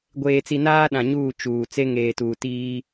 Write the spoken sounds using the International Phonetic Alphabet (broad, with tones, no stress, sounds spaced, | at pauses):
ɡʷ eː˨ t͡s i˨ n aː˦ ɗ ã˨ ɲ uː˦˨ t͡ʃ uː˨ t͡s e˦ ŋ eː˨ t uː˨ t iː˦